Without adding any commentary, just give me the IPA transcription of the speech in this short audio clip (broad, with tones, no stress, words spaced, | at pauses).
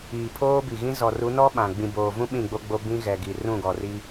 iː˨pʰoː˦bi˨ɣĩ˦ zɔ˨ru˨˦nɔ˦ ɓã˨ ɡ͡bĩ˨boː˨vũ˦ ɓĩ˦˨ɡ͡bo˦ɡ͡bo˦ bĩ˦ɣɛ˨ɡi˨ rũ˦˨ɡɔ˨ri˦